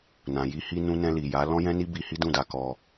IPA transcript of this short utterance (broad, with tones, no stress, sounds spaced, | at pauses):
n ã˨ j i˧ h i˧ n ũ˧ n ɛ̃˧ l i˨ j a˨˦ l ɔ̃˦ j ɛ̃˦ n i˦ b i˧ h i˦ d ũ˦˨ d a˧ k ɔ˧